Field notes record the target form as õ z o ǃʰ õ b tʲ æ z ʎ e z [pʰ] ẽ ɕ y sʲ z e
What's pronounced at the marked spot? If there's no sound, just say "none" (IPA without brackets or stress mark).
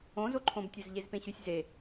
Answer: p